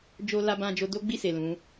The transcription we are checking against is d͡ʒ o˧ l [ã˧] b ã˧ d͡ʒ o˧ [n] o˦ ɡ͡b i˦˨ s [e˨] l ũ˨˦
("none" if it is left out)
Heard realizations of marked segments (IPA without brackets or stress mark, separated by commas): a˧, d, e˨